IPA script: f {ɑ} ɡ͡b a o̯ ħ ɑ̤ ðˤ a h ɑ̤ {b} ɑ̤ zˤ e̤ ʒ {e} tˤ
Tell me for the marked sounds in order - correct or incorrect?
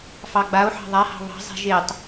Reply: correct, incorrect: β, correct

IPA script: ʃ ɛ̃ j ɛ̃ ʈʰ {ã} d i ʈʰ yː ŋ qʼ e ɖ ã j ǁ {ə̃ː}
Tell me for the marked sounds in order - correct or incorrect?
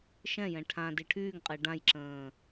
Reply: correct, correct

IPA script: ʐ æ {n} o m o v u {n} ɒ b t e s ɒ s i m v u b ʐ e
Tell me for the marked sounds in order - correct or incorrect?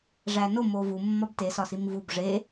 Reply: correct, incorrect: mː

